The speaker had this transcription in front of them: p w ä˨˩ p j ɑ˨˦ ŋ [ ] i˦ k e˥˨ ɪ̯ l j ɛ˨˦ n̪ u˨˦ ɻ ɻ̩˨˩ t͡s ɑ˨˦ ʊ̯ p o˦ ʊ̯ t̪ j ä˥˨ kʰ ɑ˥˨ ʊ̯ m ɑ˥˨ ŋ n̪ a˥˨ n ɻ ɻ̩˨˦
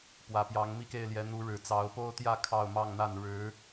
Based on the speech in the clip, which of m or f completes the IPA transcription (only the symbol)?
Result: m